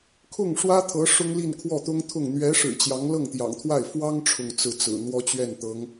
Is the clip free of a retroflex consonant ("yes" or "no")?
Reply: no